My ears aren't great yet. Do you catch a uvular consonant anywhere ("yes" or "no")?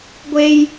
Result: no